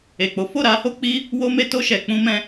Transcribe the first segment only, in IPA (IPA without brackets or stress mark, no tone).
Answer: e